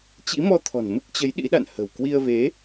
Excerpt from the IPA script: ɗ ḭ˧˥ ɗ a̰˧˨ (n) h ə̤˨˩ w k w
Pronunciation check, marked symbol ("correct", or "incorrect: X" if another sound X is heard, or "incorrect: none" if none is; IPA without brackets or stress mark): correct